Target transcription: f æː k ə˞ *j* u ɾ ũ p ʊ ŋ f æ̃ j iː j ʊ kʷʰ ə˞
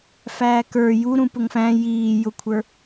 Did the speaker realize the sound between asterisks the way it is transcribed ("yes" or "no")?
yes